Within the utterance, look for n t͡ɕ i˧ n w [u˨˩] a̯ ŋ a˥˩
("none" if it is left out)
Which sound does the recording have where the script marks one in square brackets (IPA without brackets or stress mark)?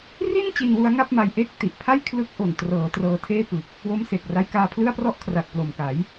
u˦˥